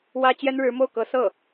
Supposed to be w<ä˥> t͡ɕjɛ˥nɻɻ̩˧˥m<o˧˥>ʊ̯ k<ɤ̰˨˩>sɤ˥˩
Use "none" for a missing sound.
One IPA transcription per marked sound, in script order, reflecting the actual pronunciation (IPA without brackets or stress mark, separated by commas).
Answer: ä˥, o˥˩, ɤ˧˥